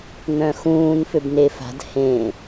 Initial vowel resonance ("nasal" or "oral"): nasal